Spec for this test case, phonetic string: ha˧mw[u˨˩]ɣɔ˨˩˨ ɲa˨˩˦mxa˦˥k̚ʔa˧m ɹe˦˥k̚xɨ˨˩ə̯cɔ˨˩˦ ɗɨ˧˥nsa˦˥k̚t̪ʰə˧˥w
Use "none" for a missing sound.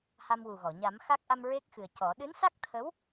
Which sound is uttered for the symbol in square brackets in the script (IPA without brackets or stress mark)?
u˨˩